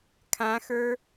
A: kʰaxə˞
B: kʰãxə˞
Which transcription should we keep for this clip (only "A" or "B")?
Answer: B